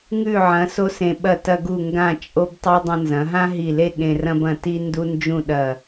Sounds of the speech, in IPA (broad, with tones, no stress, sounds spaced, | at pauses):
ŋ ʉ˧˩ ʕ ɐ̃˩˧ s o˥ s ẽ˧ ɓ ɐ˧˩ t ɐ˧ ɡ u˧˩ ŋ ɡ ã˧˩ t͡ʃʼ o˧ b tˤ i˧ dˤ ɐ̃˧ n z ɐ̃˩˧ ɦ ã˥ ɦ i˧˩ l e˥˧ ɠ ẽ˧ r ɐ̃˥ b ɐ̃˧ t i˥ n d u˥ n d͡ʒ ũ˥˧ ɗ ɐ˧˩